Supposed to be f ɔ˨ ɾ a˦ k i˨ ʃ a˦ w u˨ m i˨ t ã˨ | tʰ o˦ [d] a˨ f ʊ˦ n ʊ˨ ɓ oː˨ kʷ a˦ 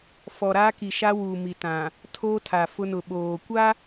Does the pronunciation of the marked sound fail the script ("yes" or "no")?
yes